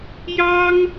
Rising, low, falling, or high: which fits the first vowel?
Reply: high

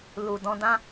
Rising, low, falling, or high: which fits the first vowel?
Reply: low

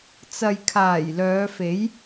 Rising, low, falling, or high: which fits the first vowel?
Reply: low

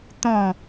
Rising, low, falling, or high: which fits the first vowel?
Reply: falling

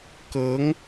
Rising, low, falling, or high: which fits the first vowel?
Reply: rising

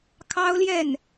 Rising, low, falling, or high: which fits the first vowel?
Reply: high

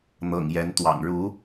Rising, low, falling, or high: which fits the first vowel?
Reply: low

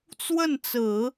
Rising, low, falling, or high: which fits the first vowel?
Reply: falling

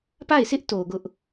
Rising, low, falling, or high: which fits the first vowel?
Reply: falling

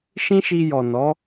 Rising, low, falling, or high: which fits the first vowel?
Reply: high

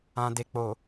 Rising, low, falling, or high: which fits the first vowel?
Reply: low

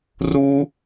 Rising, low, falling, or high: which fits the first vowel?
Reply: high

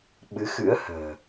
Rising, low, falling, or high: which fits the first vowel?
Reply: rising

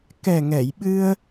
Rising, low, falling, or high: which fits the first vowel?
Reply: low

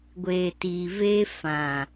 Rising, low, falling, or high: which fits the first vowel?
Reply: low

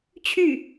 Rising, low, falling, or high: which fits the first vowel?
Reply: falling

